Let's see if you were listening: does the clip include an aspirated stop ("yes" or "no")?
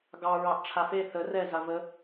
yes